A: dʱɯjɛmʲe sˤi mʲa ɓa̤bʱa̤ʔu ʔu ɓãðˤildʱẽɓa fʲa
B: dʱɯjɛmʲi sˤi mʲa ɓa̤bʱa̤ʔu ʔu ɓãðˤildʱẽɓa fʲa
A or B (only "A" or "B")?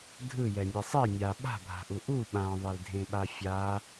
A